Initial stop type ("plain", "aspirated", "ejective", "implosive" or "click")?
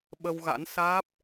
implosive